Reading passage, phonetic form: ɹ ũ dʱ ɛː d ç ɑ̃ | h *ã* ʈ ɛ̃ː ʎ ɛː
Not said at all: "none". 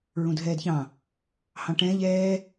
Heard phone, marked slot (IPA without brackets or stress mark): ɑ̃